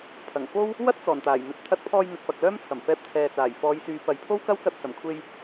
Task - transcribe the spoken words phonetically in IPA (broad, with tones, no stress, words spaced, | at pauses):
pʰɐ˨˩ŋ fo˥w | wɐ˥t̚ t͡sɔː˨˩nt̪aː˨˩jn̪ɵ˨˥t̚ t̪ʰɐ˧t̚pʰɔː˧j n̪ɵ˨t̚pɐ˨k̚lœː˥mt͡sʰɐ˨˩m fɛː˧p̚t͡sʰɛː˨t͡saː˨˩j fɔː˨˧j syː˨˧pɐ˨jpʰo˥w kɐ˥wkɐ˧t̚ sɐ˨˩mkʷʰe˧j